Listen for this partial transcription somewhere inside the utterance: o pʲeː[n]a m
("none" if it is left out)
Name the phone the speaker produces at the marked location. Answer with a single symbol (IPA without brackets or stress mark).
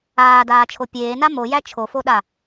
n